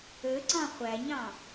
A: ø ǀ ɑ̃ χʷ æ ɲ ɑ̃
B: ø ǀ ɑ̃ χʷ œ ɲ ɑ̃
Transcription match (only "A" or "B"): A